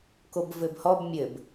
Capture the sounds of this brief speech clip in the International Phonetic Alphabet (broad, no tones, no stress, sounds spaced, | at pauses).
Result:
k o b v ɘ b h ɔ b mʲ ɘ b